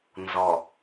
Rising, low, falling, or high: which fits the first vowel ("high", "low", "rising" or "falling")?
low